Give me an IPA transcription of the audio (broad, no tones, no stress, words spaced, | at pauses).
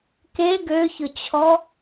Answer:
ke ɡøçʊt͡ɕʰɔ